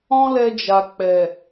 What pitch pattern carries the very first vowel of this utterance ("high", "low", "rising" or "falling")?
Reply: high